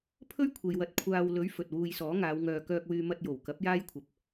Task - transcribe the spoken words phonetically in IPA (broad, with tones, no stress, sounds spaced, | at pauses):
pʰ ɵ˥ ɥ kʷʰ e˨ j w ɐ˨˥ t̚ kʷʰ aː˧ w l ɵ˨˥ ɥ f ɵ˨ t̚ w uː˧ j s ɔː˨˥ ŋ aː˨˧ w ŋ œː˨ k œː˧ k̚ w yː˧ m ɐ˧ t̚ j o˨˩ w k ɐ˨˥ p̚ j aː˥ j kʷʰ ɐ˧ p̚